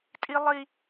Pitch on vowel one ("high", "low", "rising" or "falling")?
high